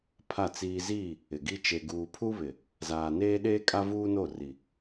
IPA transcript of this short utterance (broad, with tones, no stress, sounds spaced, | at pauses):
pʰ a˦˨ t͡s iː˦ z iː˦˨ | ɪ˨ ɡ i˦ t͡ʃ e˨ ɡ uː˨ pʰ u˦ β ɪ˨ | z aː˨ n eː˦ ɗ eː˦ kʼ a˦ v uː˦ n o˦˨ r i˨